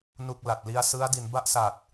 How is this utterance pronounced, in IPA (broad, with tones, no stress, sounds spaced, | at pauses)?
n u˥˩ k̚ l a˨˩ t̚ l i˧ a̯ s ɯ˦˥ a̯ d i˩˦ n b a˥˩ ʔ s a˨˩ t̚